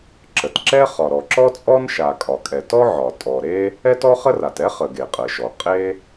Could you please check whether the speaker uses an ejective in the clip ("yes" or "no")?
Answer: yes